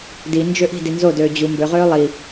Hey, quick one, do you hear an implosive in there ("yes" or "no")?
no